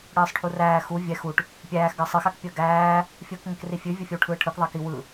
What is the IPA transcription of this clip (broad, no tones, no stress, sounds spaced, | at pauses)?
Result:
ɽ ɯː sˤ ʈʰ u r æː x u vʲ ɛ x u ʈ | pʲ æː x ɡ əː sˤ ɨ x a k pʲ əː ɡ æː | fʲ ɯː k ŋ ə k r i fʲ ʉ vʲ ɯ fʲ ə w ʈʰ ɯː ʈʰ ɯ k ðˤ əː k i w ɯ